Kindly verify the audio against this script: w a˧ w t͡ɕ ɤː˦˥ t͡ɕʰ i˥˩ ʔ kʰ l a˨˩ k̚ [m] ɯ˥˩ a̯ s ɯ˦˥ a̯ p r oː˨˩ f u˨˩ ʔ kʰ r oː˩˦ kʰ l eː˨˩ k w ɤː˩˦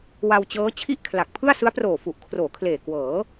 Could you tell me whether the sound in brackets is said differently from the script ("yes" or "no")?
yes